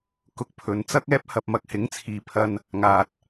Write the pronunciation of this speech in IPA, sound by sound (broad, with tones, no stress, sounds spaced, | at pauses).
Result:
k ʊ˧ k̚ pʰ ɵ˨˧ n t͡s ɐ˥ k̚ ɛː˥ p̚ h ɐ˧ p̚ m ɐ˨ k̚ h ɪ˨˥ ŋ t͡sʰ iː˨ pʰ ɐ˧ n | ŋ aː˨ t̚